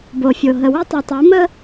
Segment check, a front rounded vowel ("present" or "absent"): present